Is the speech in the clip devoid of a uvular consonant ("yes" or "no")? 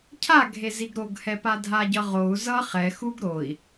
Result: no